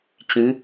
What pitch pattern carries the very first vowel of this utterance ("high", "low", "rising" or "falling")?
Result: rising